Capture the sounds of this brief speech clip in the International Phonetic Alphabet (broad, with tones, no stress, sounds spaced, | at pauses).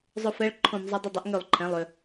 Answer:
zˤ ʊ˧˩ f ɛ˨˥ ɭ ǃʰ õ˧˩˧ m zˤ ə˨˥ dˤ ɪ˧˩ dˤ ɪ˨˥ ʔ ŋ ø˧˩˧ lˠ ǃʰ ɛ̃˩˧˩ lˠ ø˩